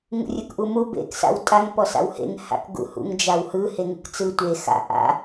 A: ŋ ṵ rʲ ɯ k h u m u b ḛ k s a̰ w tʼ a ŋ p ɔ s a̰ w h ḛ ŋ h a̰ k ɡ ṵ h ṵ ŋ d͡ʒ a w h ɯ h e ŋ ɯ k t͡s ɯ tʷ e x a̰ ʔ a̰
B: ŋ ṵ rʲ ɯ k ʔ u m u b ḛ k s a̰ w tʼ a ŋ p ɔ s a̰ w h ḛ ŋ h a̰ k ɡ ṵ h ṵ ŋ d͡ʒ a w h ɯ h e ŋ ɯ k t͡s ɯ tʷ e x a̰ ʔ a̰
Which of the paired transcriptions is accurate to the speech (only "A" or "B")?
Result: B